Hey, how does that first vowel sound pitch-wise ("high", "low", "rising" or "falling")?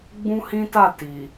high